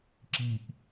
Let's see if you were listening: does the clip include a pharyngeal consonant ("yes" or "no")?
no